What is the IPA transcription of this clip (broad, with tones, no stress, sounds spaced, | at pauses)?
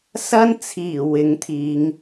s ɐ˥ n t͡sʰ iː˨˩ w ɪ˨˥ ŋ t̪ʰ iː˨˧ ŋ